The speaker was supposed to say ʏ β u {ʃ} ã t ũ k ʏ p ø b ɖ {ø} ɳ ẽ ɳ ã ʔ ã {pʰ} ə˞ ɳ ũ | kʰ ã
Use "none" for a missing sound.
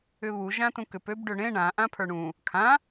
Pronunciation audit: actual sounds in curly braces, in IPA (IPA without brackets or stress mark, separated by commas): ʒ, ø, pʰ